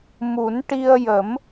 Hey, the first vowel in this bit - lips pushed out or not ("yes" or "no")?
yes